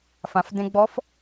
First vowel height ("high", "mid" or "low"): low